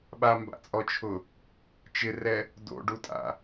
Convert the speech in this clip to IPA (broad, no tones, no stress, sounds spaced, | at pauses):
ɓ a m b a̰ t͡sʼ ɔ t͡ʃʰ ʊ | t͡ʃ ɪ r ɛ | d o̰ ɖ u tʼ a̰